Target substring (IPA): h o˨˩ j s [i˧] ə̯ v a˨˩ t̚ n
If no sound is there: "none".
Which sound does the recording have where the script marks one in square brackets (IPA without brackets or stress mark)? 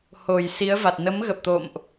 i˨˦